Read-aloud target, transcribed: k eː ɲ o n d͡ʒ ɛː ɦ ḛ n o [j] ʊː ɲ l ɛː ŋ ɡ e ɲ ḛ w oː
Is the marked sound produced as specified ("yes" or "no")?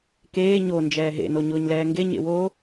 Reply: no